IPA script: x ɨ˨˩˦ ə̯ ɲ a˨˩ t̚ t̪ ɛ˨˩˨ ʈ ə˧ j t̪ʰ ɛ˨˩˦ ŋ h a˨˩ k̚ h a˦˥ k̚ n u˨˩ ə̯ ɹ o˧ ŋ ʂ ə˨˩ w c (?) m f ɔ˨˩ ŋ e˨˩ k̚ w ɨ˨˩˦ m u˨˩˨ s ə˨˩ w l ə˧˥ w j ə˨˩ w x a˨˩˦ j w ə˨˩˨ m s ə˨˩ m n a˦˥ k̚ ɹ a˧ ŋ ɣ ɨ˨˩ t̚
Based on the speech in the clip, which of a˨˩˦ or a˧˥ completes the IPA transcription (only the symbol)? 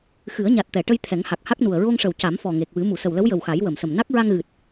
a˨˩˦